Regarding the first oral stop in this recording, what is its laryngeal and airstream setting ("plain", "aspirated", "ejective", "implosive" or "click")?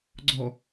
click